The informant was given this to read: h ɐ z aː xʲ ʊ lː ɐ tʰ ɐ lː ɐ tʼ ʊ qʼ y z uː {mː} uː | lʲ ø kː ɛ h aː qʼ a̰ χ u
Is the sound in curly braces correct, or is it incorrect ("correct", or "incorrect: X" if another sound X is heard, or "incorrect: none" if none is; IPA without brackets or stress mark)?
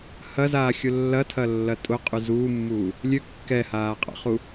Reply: correct